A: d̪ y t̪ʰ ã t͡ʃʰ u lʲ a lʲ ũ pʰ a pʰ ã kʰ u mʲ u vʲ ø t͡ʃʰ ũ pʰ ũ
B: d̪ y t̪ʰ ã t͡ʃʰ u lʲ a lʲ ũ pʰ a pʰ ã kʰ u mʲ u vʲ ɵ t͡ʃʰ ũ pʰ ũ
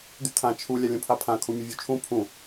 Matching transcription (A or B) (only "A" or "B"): A